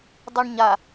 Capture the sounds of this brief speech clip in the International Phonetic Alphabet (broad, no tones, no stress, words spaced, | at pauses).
dˤiɳɲa